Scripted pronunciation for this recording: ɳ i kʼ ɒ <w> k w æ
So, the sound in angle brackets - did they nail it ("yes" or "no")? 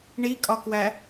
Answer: no